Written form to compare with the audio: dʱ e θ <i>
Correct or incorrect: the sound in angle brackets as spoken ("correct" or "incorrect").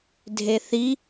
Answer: correct